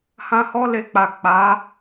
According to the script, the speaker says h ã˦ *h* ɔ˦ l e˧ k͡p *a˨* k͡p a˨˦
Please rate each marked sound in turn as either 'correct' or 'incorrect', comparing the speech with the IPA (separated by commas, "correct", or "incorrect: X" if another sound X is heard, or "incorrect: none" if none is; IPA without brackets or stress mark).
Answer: correct, correct